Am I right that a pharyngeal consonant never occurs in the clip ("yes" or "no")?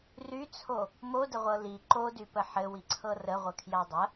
no